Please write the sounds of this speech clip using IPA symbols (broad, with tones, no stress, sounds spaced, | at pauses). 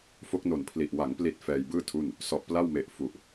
f o˦˥ k̚ n o˨˩ n pʰ l i˨˩ ʔ w a˩˦ ŋ p l i˨˩ t̚ f ɛː˧ j b ɯː˥˩ tʰ u˥˩ n | s ɔ˨˩ ʔ p l a˥˩ w m e˨˩ ʔ f u˨˩ ʔ